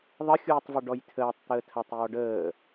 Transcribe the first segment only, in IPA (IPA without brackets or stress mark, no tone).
ðˤ